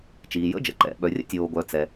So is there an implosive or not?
yes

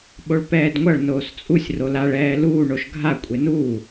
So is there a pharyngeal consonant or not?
no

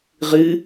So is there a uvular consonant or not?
yes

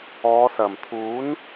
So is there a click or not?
no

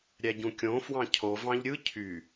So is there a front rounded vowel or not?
yes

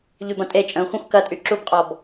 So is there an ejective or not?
yes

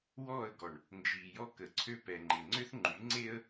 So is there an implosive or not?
no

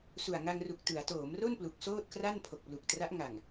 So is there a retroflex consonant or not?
no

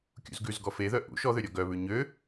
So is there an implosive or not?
no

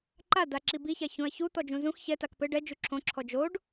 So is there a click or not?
yes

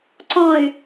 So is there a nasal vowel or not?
yes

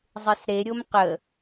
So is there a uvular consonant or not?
yes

